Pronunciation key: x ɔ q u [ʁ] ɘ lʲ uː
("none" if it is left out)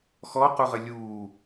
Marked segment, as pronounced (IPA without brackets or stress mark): ʁ